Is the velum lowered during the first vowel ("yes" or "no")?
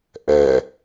no